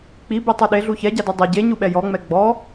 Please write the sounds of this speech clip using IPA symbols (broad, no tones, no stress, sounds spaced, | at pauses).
k͡p i b i tˤ u ɗ e ɮ u ç ɛ ɟ a d u dˤ e ɟ e ɲ u ɓ ɛ j ɔ ŋ͡m ɛ ɡ͡b ɔ